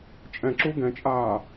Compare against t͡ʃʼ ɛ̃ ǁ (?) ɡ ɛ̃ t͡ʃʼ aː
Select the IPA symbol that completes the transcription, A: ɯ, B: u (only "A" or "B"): B